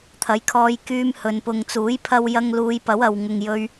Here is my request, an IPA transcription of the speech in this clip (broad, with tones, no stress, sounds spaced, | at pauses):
t̪ʰ ɐ˨˥ j kʰ ɔː˧ j k yː˧ m h ɵ˨ n p ʊ˨ ŋ t͡s uː˨˥ j pʰ ɐ˥ w j ɐ˥ ŋ l uː˨˧ j p ɐ˨˥ w ɐ˨ w ŋ ʊ˨ ŋ j ɵ˧ ɥ